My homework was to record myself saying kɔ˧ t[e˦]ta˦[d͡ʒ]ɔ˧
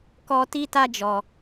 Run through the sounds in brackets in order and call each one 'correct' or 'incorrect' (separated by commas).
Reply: incorrect, correct